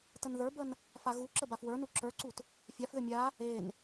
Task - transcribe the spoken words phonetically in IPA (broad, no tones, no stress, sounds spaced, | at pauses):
t ə n ð ə˞ b ə n | f a ɣ u ǁ ə b a f w ə˞ n u ǁ ə˞ ǀ u t | fʲ a f ð ʏ mʲ a | e n